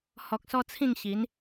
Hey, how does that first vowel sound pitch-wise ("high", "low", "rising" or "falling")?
low